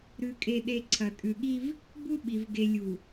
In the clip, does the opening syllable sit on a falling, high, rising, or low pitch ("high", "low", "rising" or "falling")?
low